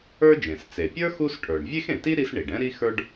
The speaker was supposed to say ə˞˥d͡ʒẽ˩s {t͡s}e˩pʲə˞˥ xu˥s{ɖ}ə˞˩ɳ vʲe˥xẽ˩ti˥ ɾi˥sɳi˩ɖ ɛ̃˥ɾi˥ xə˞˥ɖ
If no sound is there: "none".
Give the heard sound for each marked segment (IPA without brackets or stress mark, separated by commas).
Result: t͡s, ʈʰ